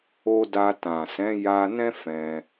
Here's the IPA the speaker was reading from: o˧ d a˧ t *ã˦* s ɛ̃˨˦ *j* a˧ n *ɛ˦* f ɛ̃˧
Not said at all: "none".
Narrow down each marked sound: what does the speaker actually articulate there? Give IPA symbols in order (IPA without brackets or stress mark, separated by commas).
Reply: ã˨, j, ɛ̃˦